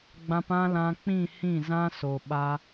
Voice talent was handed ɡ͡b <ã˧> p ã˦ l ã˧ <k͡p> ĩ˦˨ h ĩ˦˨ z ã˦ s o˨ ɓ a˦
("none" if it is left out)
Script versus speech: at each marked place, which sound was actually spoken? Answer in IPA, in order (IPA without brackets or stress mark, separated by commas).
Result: ã˧, k͡p